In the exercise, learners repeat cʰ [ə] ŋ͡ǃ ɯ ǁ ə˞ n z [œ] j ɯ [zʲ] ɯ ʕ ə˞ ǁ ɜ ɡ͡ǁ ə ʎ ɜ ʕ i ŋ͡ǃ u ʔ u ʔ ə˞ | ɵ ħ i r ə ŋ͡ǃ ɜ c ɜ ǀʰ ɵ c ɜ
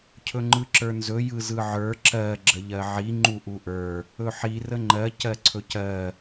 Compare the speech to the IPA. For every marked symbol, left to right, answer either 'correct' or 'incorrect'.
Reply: incorrect, incorrect, incorrect

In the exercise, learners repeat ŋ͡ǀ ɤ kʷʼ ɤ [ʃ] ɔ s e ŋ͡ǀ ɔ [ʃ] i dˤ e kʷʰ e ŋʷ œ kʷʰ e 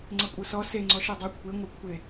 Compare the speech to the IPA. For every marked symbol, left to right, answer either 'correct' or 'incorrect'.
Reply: incorrect, correct

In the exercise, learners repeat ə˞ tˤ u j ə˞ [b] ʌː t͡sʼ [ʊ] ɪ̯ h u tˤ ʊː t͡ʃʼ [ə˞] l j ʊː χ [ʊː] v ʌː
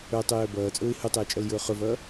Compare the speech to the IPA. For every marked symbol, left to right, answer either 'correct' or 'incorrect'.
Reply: correct, incorrect, incorrect, incorrect

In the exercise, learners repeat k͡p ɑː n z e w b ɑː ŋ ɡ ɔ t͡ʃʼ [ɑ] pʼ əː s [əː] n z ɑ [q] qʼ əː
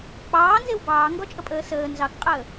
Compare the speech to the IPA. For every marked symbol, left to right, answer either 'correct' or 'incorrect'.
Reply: incorrect, correct, incorrect

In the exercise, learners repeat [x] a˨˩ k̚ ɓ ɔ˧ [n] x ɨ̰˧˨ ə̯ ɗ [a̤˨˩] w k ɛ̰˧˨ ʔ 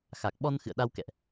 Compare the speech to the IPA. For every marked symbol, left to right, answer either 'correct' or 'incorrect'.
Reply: correct, correct, incorrect

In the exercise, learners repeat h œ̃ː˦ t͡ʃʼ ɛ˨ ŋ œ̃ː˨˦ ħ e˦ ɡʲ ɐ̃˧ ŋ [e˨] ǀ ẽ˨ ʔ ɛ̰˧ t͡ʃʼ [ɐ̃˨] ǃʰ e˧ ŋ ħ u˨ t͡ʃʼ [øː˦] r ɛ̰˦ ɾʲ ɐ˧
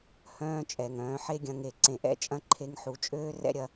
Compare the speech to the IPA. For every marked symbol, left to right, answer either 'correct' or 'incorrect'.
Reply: correct, incorrect, correct

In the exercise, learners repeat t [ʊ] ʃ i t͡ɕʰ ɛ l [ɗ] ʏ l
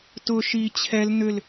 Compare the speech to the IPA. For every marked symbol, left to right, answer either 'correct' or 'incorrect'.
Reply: correct, incorrect

